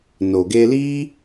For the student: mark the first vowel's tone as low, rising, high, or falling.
low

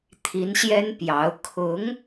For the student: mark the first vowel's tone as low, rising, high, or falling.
rising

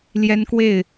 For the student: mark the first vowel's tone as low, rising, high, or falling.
high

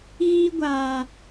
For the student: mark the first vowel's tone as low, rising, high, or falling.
high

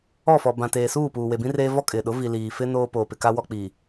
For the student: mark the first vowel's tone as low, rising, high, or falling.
falling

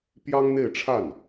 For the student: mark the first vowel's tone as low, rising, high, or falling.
high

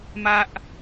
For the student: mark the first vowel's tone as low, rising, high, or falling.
high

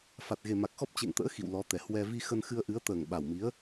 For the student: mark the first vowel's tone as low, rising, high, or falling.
low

